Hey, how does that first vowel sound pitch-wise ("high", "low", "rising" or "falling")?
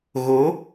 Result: rising